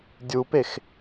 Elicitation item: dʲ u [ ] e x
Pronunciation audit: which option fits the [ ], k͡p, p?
p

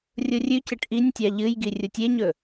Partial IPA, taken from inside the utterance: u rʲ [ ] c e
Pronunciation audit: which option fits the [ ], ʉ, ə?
ʉ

